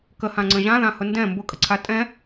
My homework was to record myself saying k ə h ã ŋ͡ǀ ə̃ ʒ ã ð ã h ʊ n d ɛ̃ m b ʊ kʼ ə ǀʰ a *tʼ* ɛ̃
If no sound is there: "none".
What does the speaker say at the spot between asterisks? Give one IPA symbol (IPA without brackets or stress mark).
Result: tʼ